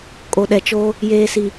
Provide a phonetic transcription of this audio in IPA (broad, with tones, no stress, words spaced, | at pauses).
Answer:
kʼo˨ɗɛ˨t͡ʃoː˦ | jeː˨si˨